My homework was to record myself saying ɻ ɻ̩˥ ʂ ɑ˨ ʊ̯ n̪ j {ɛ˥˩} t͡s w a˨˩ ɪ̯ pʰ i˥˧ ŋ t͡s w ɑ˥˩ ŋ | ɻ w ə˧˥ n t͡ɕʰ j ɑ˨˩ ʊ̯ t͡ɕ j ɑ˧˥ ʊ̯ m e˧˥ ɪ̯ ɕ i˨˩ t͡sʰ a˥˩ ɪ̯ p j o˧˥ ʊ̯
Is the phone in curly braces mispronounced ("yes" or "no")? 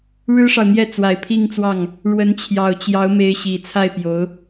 no